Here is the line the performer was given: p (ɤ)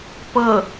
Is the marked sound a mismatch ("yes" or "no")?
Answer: no